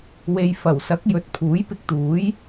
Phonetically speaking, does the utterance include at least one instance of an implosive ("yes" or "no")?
no